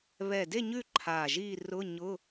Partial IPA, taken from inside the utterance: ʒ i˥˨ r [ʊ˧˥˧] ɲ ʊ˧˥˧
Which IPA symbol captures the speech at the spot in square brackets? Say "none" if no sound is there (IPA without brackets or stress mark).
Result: ʊ˧˥˧